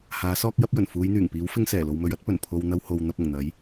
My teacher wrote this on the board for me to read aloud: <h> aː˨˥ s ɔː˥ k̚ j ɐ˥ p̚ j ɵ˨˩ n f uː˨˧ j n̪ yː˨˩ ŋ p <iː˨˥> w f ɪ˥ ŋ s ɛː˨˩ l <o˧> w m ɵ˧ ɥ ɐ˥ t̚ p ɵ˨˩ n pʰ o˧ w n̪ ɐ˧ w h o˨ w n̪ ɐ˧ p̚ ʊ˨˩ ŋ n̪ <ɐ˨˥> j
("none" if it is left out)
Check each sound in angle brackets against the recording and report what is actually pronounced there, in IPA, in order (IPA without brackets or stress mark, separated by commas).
h, iː˨˥, o˧, ɐ˨˥